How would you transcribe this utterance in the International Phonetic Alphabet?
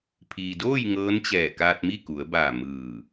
pʰiː˩doː˥˨j ŋɤː˧˥nt͡ɕɛː˧˩ kaː˧t̚mi˥˨ku˩˧ə̯baː˧˩ mɯː˧˩

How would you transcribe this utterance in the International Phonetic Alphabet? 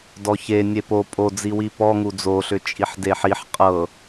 dɔçe nʲepo pʼod͡ziwi pɔ ŋud͡zoɬʏ t͡ʃʼiħdeħiħ qʼɤ

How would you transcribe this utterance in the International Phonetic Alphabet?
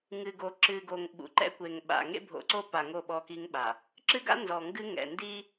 ŋɨ˨ɡo˨ǁɨ˨ɡo˨ŋ ɓṵ˨ǃɛ̰˦ kʷe˨ŋɓa̰˨ ŋḛ˦bʱo̰˨ǀo˦ pa˨ŋo˦˨ ɓɔ˦ki˦ŋɓa˨ | ǁɨ˦ɡa̰˦ nzɔ˨ŋɡɨ˦ŋɛ̰˨ ndi˦

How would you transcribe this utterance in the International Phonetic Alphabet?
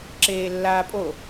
ǁeːlːaːpʼo

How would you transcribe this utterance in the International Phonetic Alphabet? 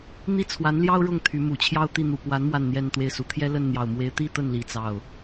n̪i˥˩t͡sʰwa˧˥nljɑ˥ʊ̯ ɻʊ˥˩ŋt̪ʰy˧˥mu˨˩t͡ɕʰjɑ˥˧ʊ̯ t̪i˥˩n̪u˨˩ pwa˧˥n mwa˥˧nn̪jɛ˥˧nt̪we˥˩ɪ̯su˧˥ t̪ʰjɛ˥lə˥˩nn̪jɑ˨˩ʊ̯mwe˧˥ɪ̯ t̪i˥˧t̪ə˥˩nli˨˩ t͡sɑ˥˩ʊ̯

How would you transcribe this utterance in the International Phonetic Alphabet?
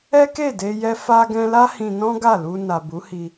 ɛ˦ke˦˨de˧jɛ˧ fa˧ɡɛ̃˧la˦ hĩ˧nɔ̃˦ɡa˦˨lu˧ na˨bu˨˦hi˧

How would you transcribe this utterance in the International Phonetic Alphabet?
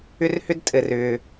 ʏ˥rhʏ˥d tʼɘ˩rʏː˩

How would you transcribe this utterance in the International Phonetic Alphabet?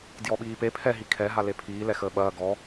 djɔɓiːpe pʰɛ ɦikʰɛ ɦalepʰiː lɛxəːɓɐː ɡɔ

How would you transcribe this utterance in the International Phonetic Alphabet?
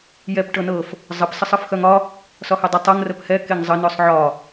jɛp ʈɤnɤf | zˤəp səsˤɤfxœŋɒ | sɒhɛdˤə tˤɤŋ rəphɛ keŋzˤə nœsˤʕɒ

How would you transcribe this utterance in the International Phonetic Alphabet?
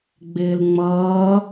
ɡ͡bɪːlŋ͡mʌː

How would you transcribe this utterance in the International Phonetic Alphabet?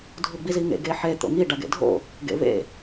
dʱuɡ͡biziŋḛ ɡeħe t̪o̰ŋi ɖaɡḛdʱo̰ | ɡḛvḛ

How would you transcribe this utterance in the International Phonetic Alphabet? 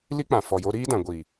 li˦k͡pã˨ fɔ˨ jo˧ɾiː˦dã˨ ɡʷi˨

